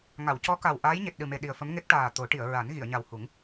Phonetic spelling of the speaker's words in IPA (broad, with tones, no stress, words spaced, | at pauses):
ŋa˨˩˨wcɔ˧˥ka˨˩w ʔaː˧˥jɲe˨˩t̚ɗɨ˨˩me˨˩ ɗi˨˩ə̯fə˧˥mŋe˦˥k̚ ʈaː˨˩ t̪o˨˩˦ʈi˨˩˨ə̯ ɹa˨˩˦n ɣi˨˩˨ə̯ɲa˨˩whu˨˩˦ŋ